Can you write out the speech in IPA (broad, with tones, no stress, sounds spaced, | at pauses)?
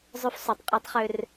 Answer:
zˤ ʉ˦ f sˤ u˨˦ tˤ qʼ ø˦ tˤ χ ø˦ r